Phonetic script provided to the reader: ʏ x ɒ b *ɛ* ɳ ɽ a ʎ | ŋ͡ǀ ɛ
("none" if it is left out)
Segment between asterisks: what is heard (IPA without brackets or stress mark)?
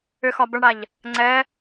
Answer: ə